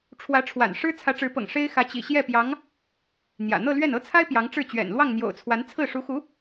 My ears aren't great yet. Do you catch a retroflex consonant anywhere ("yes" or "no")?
yes